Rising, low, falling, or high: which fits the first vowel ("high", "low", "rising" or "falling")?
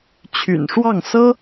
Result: low